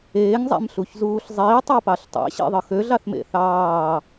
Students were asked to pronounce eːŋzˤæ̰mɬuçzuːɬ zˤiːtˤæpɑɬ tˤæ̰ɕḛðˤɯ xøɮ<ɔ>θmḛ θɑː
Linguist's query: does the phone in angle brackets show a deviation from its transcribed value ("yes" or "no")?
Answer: yes